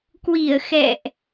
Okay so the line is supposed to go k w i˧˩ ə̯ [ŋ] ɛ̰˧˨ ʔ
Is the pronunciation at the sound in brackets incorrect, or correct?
incorrect